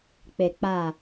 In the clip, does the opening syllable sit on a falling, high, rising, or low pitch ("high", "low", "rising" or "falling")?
low